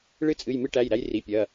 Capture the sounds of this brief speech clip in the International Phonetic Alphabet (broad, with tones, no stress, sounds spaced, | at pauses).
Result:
ɭ ɨ˦ t͡sʼ ɨ˩˧˩ j m ɨ˦ ʈ æ˩˧˩ j ɾ æ˦ j r i˩˧˩ pʲ ɐ˩˧˩